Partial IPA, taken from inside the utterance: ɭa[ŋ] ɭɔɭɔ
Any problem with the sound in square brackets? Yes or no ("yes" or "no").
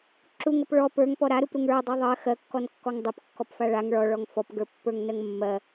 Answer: no